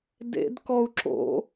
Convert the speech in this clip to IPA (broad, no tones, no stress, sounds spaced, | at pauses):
d ḛ d k ɔ u̯ ǁ o̰